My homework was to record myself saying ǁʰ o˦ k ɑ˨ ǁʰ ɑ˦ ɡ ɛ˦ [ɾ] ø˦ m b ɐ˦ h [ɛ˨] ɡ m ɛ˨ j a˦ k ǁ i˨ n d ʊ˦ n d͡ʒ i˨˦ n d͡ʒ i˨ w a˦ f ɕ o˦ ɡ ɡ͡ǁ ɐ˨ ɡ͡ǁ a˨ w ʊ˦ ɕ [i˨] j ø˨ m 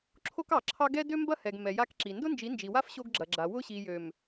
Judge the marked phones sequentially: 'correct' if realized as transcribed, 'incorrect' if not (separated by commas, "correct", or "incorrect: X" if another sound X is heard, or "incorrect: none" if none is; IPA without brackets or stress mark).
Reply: incorrect: d, correct, correct